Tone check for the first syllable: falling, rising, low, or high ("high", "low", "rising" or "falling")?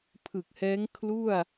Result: low